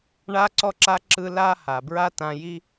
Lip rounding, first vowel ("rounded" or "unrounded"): unrounded